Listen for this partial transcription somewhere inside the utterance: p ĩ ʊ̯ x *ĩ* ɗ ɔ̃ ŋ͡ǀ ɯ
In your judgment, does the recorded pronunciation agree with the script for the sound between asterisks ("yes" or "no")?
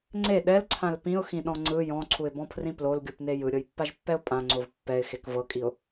yes